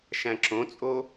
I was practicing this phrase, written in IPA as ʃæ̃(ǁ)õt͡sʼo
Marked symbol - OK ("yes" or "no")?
yes